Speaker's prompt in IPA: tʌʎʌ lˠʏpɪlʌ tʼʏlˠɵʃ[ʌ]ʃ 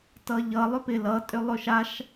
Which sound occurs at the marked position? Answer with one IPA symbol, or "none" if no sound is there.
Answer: a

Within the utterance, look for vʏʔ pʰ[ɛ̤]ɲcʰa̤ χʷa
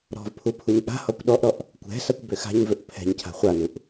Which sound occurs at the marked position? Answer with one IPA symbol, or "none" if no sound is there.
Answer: ɛ̤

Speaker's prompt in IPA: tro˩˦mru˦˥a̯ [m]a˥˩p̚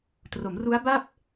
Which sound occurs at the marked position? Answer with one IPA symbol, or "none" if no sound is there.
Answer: b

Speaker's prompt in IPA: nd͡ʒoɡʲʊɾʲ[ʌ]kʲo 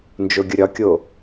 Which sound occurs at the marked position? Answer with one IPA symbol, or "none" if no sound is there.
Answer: ɒ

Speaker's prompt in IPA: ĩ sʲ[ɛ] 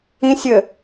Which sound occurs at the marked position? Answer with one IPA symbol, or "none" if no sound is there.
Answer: ɘ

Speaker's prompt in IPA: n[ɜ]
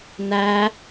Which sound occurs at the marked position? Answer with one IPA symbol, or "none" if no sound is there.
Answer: æ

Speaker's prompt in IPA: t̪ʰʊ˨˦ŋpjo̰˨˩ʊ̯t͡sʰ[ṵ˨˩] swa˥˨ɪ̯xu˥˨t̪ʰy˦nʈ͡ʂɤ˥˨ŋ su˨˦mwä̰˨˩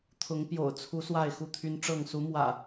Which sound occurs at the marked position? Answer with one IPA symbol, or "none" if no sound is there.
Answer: u˨˦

